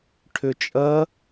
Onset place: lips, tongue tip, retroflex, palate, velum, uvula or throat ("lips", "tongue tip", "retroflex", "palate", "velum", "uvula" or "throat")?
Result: retroflex